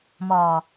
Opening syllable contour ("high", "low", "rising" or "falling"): low